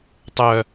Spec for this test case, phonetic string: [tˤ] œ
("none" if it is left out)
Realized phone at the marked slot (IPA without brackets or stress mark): tˤ